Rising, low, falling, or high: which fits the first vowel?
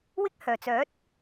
high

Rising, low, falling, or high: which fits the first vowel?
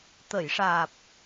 low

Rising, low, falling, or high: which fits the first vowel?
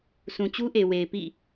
low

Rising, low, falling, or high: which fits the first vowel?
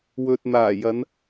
low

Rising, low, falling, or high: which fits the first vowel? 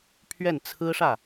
falling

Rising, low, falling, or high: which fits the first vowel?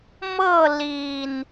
falling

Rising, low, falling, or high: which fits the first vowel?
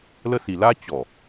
high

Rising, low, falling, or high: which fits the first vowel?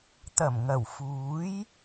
low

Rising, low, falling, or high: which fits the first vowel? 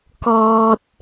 high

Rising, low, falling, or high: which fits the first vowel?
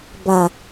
low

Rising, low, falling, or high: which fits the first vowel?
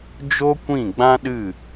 high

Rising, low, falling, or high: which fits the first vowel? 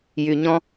low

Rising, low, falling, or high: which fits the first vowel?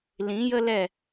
rising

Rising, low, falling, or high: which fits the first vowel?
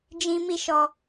high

